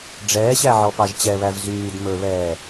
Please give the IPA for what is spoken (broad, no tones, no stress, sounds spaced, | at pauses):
ɖ͡ʐ ɛː ɕ æ ʕ ɔ p ɑ ʒ t͡ɕ ɛ β æ v z yː d m ɵ β ɛː